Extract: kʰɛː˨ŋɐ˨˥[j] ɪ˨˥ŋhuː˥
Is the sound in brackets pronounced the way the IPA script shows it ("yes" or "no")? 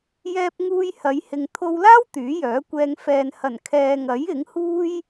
yes